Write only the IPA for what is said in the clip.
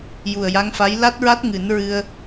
ju˨˩ə̯ja˧˥ŋfa˧˥j la˦˥t̚ɹa˦˥t̚ ŋɨ˨˩˦n ɹɨ˧ə̯

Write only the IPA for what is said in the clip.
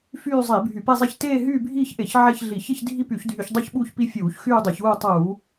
fyː˥˧zˤiː˧˩˧bʱy˧˩˧ pe˥˧zˤi˥˧ç teː˥˧ɦyː˥˧bʱiː˥˧çʔe˧˩˧ç ʕe˥˧çɮi˧˩˧ çe˥˧ç dʱi˥˧py˧˩˧çdʱy˧˩˧ç dˤu˥˧çɓuː˥˧çpi˥˧ fʲuː˧˩˧ç xyː˥˧dˤu˧˩˧çuː˥˧ tˤuː˧˩˧

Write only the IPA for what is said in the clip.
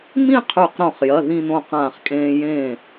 mĩ˥˧qʰʉ˧˩qɾõ˧˩χjɐ˩˧˩ ðĩ˥˧nõ˥˩ qãː˧˩χkʼẽː˧ jẽː˥˩

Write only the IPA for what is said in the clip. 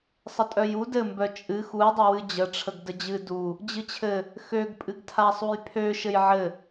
sˤətʼœju dɘmbœ t͡ʃʼɨ xujdˤɘwɨ d͡ʑəʈ͡ʂʰəɡ dəd͡ʑɨ du | d͡ʑɨt͡ɕʰɘ | xøɡpʼɨɡtʰasˤuj pʰø ʃɘjʕɘ

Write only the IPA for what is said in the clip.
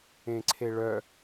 ẽǀʰeɭœ

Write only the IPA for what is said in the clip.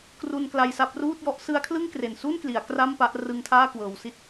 kru˧nkla˧jsa˦˥p̚ ruː˥˩t̚jɔ˦˥ʔ sɯ˦˥a̯kʰlɯ˥˩ŋkre˨˩nsu˥˩n kli˩˦a̯kra˥˩mpa˦˥ʔ rɯ˦˥ŋtʰaː˥˩ kwɤː˧w si˦˥t̚

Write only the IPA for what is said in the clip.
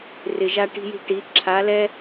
rɪ˨ʒa˧ʈi̤˧ji̤˧ ʈi˨˦ ǁʰa˨˦lɛ˦

